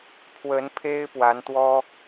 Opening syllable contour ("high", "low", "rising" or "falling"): rising